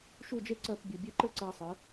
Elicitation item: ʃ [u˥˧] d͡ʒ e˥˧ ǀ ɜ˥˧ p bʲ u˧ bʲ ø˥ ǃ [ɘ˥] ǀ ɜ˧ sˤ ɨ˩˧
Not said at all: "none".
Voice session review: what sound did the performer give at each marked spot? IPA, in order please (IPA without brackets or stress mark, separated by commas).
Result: u˥˧, ɘ˥